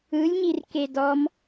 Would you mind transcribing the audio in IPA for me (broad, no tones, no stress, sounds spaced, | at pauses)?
ɯ lʲ ɲ i r k e d ɔ m